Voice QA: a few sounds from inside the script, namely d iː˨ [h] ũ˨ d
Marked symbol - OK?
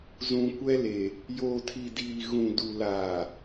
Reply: no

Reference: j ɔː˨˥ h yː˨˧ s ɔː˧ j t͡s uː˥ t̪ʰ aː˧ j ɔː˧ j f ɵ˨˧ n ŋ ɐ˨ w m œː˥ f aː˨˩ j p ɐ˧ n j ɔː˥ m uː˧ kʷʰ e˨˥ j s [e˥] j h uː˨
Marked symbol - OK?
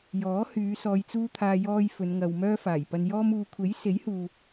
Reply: no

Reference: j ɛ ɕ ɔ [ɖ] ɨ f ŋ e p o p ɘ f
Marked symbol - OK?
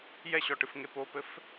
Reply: no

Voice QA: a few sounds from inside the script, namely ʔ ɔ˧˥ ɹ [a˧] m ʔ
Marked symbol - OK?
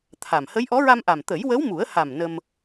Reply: yes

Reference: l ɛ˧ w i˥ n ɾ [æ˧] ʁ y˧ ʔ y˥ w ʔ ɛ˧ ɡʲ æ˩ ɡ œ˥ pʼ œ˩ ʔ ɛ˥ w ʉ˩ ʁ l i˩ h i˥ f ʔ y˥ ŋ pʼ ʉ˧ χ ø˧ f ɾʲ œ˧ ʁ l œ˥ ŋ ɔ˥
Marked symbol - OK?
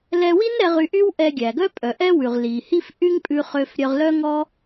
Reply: no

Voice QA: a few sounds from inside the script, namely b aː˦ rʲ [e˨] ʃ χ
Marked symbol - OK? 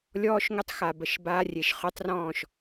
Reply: yes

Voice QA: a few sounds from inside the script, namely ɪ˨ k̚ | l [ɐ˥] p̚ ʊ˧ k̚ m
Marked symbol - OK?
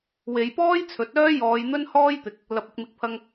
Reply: no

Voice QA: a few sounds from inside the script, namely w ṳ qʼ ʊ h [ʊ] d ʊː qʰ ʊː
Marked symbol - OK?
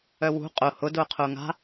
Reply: yes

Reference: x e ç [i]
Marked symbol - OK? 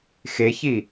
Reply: yes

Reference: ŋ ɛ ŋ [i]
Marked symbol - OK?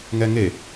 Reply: no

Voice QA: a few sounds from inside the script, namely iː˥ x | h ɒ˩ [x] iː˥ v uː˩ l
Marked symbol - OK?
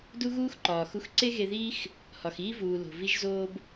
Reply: yes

